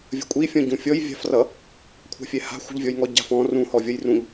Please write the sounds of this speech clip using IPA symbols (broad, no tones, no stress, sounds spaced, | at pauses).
vʲ ə̤ kʷʼ i fʲ ɔ̃ ɟ ũ fʲ ɔ j vʲ a̤ f r ʌ | kʷʰ a̤ fʲ ɛ h a̤ xʷ ə̤ ʎ vʲ ɔ j ŋ ɔ ɟ a̤ f ɔ̃ r ũ h ɔ vʲ ʌ j r ũ ʎ